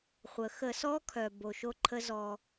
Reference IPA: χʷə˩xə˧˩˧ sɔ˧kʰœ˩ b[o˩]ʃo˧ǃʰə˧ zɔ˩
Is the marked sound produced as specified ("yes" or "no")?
yes